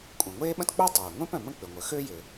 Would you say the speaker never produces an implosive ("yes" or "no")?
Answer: no